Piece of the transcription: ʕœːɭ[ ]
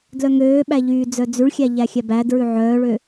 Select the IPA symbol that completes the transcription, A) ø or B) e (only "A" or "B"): A